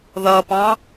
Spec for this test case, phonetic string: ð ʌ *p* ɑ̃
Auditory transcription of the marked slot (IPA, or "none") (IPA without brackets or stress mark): p